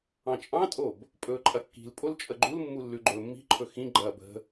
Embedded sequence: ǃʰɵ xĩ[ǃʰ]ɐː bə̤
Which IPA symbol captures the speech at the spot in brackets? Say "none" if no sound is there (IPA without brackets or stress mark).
ɡ͡ǃ